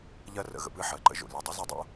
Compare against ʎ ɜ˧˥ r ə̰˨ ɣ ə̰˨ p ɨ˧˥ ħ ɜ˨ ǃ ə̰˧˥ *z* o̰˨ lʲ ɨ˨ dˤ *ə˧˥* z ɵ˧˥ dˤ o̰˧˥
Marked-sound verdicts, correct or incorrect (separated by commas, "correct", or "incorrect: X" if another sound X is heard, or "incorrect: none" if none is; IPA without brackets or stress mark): incorrect: ʒ, incorrect: ɨ˧˥